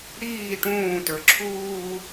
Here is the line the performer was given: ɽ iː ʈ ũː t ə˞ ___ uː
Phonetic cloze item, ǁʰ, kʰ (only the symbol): ǁʰ